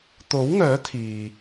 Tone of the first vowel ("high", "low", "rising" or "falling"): rising